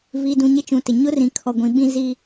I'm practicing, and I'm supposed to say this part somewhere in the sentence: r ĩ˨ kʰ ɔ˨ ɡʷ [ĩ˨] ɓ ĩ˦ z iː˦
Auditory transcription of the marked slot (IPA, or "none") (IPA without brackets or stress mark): ĩ˨